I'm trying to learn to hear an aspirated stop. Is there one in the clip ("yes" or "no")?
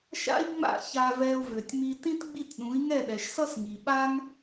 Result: no